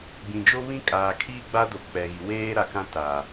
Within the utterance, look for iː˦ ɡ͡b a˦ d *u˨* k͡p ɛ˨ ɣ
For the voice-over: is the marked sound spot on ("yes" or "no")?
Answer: no